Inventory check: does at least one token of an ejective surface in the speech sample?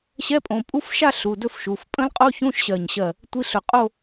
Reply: yes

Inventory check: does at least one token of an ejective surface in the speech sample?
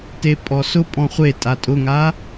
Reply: yes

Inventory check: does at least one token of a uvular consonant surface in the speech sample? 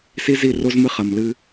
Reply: yes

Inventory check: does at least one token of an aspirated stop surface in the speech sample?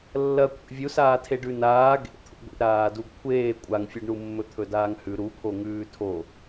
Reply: yes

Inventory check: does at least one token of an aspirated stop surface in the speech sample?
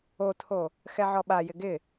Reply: yes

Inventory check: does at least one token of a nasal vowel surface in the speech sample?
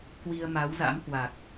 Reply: no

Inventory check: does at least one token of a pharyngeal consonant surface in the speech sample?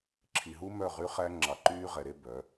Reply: no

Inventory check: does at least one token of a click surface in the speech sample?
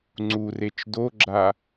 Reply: yes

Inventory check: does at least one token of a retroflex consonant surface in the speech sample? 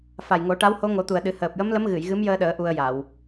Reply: yes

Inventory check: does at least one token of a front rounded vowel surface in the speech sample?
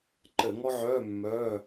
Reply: yes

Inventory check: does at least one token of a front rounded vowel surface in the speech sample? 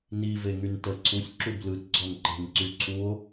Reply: yes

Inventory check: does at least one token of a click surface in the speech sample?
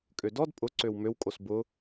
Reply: yes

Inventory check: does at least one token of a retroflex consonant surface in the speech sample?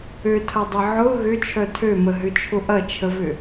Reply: no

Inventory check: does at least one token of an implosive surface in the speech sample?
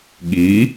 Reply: yes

